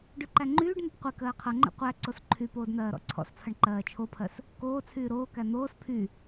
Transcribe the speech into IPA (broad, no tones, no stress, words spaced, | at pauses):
ɖyǃæŋ͡ǃyːɖn̪ʌp qʷek ɜːqʰʌŋ͡ǃḛ qʷæ ǀosǃʰypoːd n̪ɜːɾɔ̰ǀʰɔ̰st͡sʰʌɳ ǃɜːt͡ʃʰopʰɜs | koːt͡sʰyː ɾoːkæ n̪oːs pʰy